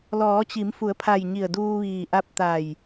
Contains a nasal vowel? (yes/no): no